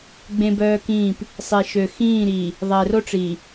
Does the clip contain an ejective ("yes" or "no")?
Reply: no